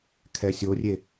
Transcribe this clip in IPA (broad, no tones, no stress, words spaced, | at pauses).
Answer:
kʰɛsʲorʲe